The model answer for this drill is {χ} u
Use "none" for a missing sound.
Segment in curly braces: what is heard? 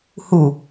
h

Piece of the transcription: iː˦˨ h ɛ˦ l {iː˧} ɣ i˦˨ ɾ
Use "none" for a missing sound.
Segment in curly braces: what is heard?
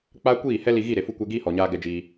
i˧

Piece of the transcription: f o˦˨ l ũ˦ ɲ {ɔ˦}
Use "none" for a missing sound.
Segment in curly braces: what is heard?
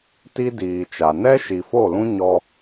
ɔ˦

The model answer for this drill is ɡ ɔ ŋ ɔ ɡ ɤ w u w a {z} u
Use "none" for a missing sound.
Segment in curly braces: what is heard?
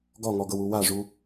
ʐ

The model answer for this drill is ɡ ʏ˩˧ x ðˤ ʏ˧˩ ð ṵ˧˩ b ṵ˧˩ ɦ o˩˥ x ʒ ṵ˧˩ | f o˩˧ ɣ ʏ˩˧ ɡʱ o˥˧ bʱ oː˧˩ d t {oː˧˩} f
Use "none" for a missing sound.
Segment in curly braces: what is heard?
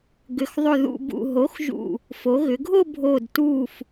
uː˧˩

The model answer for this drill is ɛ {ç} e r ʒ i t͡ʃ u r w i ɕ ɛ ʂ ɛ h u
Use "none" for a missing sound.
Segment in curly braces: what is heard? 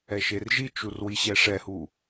ʃ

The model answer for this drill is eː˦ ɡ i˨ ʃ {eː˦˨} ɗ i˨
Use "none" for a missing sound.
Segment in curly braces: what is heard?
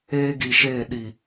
eː˦˨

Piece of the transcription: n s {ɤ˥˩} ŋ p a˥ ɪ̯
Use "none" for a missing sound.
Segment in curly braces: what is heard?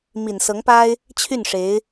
ɤ˧˥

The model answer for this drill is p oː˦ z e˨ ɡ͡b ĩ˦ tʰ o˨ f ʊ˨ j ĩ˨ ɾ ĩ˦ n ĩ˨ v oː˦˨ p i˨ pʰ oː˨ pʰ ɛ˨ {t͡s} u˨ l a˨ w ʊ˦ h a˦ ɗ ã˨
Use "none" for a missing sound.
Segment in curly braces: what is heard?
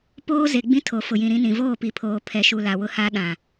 ʃ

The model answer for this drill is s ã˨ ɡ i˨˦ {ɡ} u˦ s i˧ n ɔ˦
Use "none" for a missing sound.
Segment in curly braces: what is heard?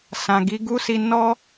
ɡ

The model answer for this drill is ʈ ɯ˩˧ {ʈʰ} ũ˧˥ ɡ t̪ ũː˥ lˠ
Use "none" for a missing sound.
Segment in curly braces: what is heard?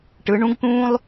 ɳ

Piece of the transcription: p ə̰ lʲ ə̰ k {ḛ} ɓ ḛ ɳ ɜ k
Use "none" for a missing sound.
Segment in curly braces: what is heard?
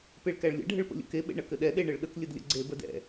e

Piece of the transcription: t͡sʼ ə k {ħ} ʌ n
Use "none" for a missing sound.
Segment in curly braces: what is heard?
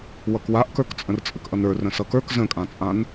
ʔ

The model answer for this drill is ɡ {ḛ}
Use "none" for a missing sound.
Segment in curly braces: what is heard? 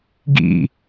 ḭ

